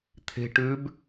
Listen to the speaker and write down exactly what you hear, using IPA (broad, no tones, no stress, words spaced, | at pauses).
t̪ʰe̤ʈʉːb